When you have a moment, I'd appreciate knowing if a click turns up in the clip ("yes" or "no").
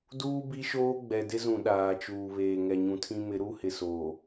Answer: no